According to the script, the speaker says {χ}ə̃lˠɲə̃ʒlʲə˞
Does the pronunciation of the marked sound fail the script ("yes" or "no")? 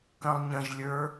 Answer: yes